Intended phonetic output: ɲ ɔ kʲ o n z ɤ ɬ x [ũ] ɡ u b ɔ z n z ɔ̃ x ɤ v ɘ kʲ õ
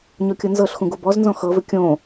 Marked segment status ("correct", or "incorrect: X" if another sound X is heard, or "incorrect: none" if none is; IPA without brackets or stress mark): correct